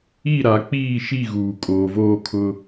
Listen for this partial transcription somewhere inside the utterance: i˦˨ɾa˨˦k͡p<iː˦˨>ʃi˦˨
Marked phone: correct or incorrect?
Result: correct